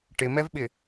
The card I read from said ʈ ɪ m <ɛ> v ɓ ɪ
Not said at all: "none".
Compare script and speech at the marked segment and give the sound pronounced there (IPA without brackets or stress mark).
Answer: ɛ